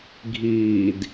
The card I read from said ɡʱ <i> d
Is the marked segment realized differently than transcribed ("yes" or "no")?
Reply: yes